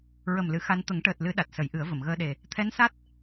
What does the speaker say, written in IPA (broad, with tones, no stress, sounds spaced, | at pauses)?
ɹ ə˨˩ m l ɨ˨˩˨ x a˧ n t̪ ə˨˩˦ ŋ ʈ əː˨˩ t̚ l ɨ˨˩˦ ɗ a˨˩ t̚ s ə˨˩˦ j ʔ ɨ˨˩˦ ə̯ v ə˨˩˨ m ɣ əː˧ ɗ e˨˩ | t̪ʰ ɛ˧˥ n s a˦˥ t̚